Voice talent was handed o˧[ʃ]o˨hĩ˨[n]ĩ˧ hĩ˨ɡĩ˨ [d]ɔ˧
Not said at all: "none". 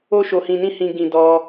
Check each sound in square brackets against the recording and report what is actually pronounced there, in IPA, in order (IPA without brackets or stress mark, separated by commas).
ʃ, n, d